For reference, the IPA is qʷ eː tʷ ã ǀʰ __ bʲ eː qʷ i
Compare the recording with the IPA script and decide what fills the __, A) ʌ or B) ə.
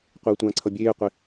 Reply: A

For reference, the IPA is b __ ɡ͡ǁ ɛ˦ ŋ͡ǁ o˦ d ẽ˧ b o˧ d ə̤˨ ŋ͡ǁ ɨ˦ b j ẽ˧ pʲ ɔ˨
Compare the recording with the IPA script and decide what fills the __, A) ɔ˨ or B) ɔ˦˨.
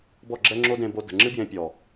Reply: B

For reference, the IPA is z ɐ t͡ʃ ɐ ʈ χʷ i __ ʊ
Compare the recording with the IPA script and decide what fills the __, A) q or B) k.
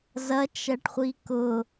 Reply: B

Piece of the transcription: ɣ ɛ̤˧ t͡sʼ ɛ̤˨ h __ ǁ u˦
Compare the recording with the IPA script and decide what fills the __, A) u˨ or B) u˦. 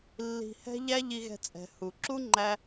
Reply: A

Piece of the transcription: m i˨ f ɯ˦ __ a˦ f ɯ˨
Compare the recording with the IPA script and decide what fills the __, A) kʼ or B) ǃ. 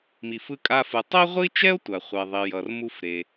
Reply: A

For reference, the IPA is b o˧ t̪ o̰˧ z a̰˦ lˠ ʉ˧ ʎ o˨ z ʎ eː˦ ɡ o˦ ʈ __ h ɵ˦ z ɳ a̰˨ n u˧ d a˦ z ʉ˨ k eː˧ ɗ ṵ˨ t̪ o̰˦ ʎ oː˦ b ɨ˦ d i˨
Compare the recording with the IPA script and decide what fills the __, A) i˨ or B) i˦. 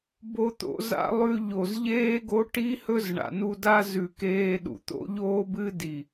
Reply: B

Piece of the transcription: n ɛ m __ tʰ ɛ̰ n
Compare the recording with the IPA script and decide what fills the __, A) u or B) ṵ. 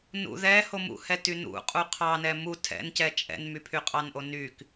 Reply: A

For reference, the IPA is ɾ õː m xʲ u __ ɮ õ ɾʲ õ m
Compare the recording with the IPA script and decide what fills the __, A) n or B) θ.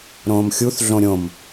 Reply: B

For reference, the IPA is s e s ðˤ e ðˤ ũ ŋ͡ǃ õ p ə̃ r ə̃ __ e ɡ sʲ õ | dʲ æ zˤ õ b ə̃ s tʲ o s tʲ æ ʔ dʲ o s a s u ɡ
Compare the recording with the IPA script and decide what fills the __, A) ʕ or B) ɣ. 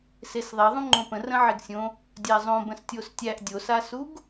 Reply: A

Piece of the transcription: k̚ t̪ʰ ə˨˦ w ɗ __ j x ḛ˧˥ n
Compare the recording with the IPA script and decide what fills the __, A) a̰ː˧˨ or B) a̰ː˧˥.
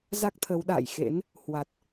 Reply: A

